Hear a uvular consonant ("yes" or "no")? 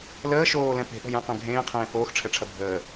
yes